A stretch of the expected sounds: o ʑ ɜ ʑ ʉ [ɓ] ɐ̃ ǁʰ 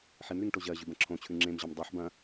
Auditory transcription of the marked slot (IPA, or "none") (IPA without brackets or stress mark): b